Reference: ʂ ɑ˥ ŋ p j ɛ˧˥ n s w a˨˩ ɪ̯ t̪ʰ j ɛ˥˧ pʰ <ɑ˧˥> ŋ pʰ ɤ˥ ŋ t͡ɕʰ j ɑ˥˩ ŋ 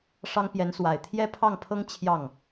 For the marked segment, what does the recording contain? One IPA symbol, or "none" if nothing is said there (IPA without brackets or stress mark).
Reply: ɑ˥˩